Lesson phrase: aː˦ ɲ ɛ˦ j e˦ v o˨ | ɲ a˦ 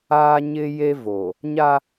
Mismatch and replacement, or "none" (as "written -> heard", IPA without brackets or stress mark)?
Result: ɛ˦ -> ɪ˦